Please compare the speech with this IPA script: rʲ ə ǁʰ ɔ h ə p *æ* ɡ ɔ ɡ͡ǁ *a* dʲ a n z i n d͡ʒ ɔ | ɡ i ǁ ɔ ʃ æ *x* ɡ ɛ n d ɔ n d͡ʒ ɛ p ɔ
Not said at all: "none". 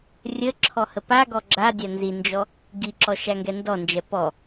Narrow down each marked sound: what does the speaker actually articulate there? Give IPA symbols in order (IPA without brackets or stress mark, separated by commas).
a, a, ŋ